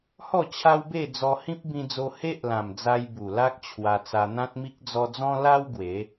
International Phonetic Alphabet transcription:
h ɔ˥˧ t͡ɕʰ a˦ w b e˥˧ d͡z ɔ˧ h ĩ˦ p̚ b ĩ˧ d͡z o˧ h e˦ ʔ l ã˨˩ m d͡z a˧ j b u˨˩ l a˦ k̚ t͡ɕʰ w a˧ t͡s a˧ n̪ ã˦ t̚ m i˦ k̚ d͡z ɔ˦ d͡z ɔ̃˦ l a˦ w ɡ w e˨˦

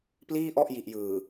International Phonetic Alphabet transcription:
p l iː˥˩ ʔ ɔ˥˩ ʔ j i˨˩ ʔ j ɯː˨˩

